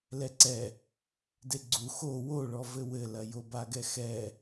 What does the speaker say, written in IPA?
lɛǀɛ | deɡ͡ǀu xo woɭɔ vɘwɘlɐ jobaɡɛxɛ

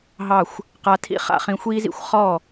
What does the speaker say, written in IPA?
ɦɑ˥˩xʷ | qa˧tʰḭ˥ χa̰˥χĩ˧xʷiː˥z ḭ˥xʷ χɔ˥˩

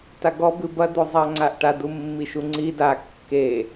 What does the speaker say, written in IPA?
taɡɔ bɨbɐd̪ozˤa ŋ͡ǀaʔʈadumːi ʃuŋ͡ǀi da kːe

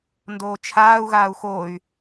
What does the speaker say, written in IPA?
ndoːt͡ʃʰaːu̯ ɣaːu̯xoy̯

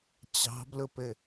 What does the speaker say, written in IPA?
t͡ɕɑ̤blʊpɘ

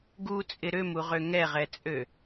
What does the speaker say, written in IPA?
ɡut͡sʼɪ ɾømuʁø ŋɛʁɛt͡sʼø

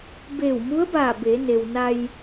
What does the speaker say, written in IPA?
beː˧˩wmu˧˥ə̯baː˧˩ be˩˧ne˩wna˧j

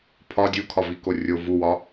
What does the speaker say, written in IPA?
pʰɒ dʲukʰɒviko rʲo vuwɒ

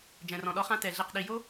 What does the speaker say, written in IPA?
d͡ʒɛ̃˨rɔ̃˨ɗɔ˧χã˧ tɛ˨ɮi˨q ɗi˨jo˦

